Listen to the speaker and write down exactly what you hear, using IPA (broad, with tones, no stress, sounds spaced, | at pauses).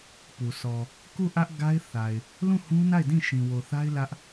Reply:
p u˨ sʰ ɔ˨ | k u˦˨ ʔ ä˦ ʔ ɡ a˦ ɪ̯ θ a˨ ɪ̯ | l ũ˦˨ h ũ˦ n a˦˨ ɪ̯ d ĩ˦˨ ʃ ĩ˨ w o˨ θ a˦ ɪ̯ l ä˦ ʔ